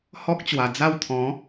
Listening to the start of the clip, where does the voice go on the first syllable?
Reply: high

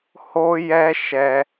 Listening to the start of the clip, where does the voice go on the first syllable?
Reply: high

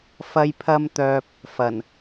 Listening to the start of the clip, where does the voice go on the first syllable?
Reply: high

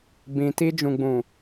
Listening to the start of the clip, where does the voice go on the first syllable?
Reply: low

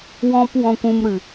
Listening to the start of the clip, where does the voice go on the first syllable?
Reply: high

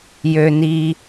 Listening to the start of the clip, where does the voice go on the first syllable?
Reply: low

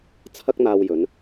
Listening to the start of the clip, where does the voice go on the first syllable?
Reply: high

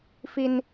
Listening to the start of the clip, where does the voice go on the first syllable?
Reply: high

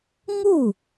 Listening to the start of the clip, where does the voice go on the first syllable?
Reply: falling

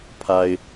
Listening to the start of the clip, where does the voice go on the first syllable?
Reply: low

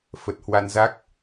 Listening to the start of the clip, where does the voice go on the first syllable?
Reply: low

